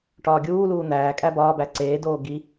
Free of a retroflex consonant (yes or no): no